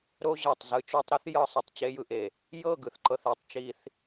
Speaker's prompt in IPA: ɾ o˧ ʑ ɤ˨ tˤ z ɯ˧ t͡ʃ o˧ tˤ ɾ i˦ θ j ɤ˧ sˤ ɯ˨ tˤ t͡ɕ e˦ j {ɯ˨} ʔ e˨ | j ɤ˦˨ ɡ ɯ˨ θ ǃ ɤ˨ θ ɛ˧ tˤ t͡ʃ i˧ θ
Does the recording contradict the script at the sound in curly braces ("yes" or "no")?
yes